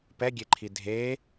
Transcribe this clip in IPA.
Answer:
pɛɡʲeǃʰi dʱe

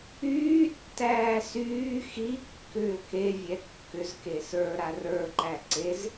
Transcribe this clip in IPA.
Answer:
yːtːæː syː xikːʏː kevʲɛ kːʏzke sə˞ɾa rə˞ǃæ ǀez

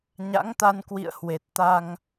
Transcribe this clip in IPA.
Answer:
ɲa̰˧˥ŋt̪a˧n kwḭ˧˨ə̯hwe˨˩t̚ t̪a˧ŋ

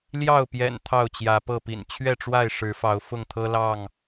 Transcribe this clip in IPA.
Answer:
ljɑ˥˨ʊ̯pjɛ̰˨˩n t̪ʰɑ˥˨ʊ̯t͡ɕjä˨˦pɤ˥˨pḭ˨˩n t͡ɕʰɥɛ˥˨ʈ͡ʂwa˥˨ɪ̯ ʂɻ̩˨˦fɑ˨˦ʊ̯ fʊ˥˨ŋt̪ʰɤ˦lɑ˥˨ŋ

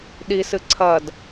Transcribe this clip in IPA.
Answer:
ɗisɨ ǀʰɐd

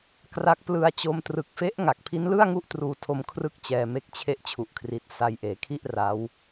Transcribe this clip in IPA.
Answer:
kra˦˥k̚ plɯ˧a̯t͡ɕo˧mtrɯ˨˩k̚fe˦˥ʔ ŋa˨˩k̚pʰi˦˥nlɯ˥˩a̯ŋu˦˥ʔ truː˧tʰo˧m kʰrɯ˥˩k̚t͡ɕɛː˧ me˦˥k̚t͡ɕʰe˦˥ʔt͡ɕʰu˨˩ʔkʰri˨˩t̚ sa˧jʔeː˩˦kʰi˥˩ʔ ra˦˥w

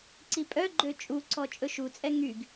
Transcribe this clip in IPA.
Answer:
ǀipʼœɡ͡ǃø t͡ʃʼuǀɔ t͡ʃʼɵʃut͡sʼɛ ŋyɡ

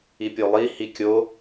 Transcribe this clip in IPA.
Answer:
ipʲolˠi hikʲo

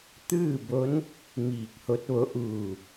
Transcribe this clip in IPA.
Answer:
t̪ɯː˥˨bo˧˥n | miː˧˩k̚ho˧˥t̚ʋo˧˥ ʔuː˧˩

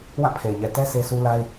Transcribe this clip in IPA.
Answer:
wã˦˨pʰe˨ɪ̯ɲɛ˨ tɛ˦ se˦sʰu˦la˦ɪ̯

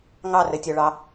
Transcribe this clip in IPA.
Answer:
ŋɑrɘtʲɔɭɑ

